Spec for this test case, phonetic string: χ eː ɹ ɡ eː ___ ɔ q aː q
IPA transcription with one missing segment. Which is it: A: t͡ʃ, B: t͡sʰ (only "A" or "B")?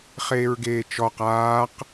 A